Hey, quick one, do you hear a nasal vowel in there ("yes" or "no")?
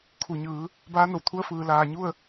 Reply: no